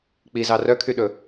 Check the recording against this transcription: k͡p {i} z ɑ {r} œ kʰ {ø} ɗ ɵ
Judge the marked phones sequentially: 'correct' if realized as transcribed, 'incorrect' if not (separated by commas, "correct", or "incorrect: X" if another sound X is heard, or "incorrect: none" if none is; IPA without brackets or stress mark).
correct, correct, incorrect: y